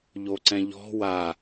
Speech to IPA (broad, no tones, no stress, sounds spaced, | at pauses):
ʎ o ǀ ɛ̃ ʎ ɔ̤ w a